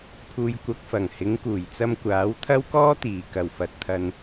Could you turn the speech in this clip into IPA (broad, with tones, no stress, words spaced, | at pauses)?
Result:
pʰuː˨jkʷɐ˨k̚fɐ˨˩ŋ hɪ˨˧ŋkuː˨˩jt͡sɐ˧m kʷaː˨˥wt̪ʰɐ˥wkɔː˥t̪iː˨˩ kɐ˨˩wfɐ˨t̚t̪ʰɐ˨n